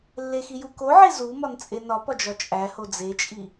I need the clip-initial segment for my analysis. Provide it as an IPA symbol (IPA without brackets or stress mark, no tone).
lː